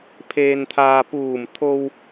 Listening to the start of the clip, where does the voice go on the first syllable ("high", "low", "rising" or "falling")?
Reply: low